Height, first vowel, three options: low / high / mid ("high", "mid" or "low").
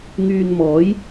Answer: high